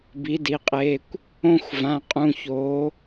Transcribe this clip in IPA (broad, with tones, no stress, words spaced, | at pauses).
bi˩˥di˩˧qʼeː˩˧˩kʷ | õ˥˧xʷ vã˩˧˩qʼũ˩˧˩çoː˩˧